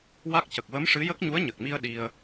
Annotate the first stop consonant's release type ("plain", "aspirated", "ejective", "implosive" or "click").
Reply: plain